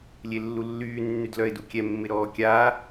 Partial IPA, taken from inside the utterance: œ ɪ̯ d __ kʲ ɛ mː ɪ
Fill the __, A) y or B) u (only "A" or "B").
B